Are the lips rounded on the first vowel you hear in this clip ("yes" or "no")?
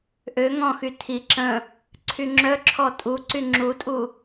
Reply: yes